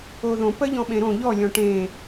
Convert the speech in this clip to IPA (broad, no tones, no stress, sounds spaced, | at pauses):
o ð õ p ɜ ʎ ɔ̃ ɓ ẽ ɾ õ ʎ ɔ lʲ ɔ̃ ʈ ẽ